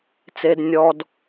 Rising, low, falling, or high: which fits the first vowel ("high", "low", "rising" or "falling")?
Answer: low